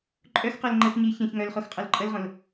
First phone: ǃʼ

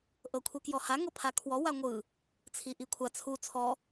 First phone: ʔ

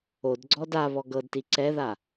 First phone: o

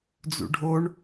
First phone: d͡z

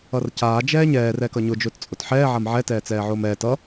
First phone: ʌ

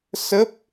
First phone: s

